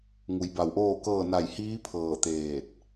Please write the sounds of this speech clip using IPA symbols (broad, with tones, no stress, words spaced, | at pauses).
ŋu˩˧jba˧˩wʔoː˥˨kɤː˥˨ na˧˩jhiː˧˥ pʰɤː˧˩t̪eː˧˩t̚